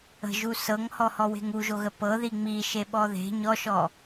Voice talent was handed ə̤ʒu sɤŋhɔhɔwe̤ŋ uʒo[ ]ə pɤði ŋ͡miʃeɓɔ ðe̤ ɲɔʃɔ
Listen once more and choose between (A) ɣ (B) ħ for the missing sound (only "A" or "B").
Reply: A